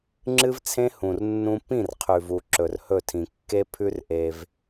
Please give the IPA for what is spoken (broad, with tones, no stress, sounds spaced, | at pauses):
ŋ͡ǁ ɨ˦ v t͡sʰ ẽ˦ h ũ˨ r nː ũ˦ p ĩ˦˨ r qʰ ʉ˨ v u˨ ǁ ɵ˨ r h ɵ˦˨ tʰ ĩ˨ kː e˦ pʰ ʉ˦ r ʔ e˦ v